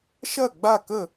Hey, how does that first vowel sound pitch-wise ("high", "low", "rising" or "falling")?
falling